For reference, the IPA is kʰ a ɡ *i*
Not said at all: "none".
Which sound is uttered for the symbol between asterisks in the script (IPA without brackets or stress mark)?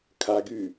y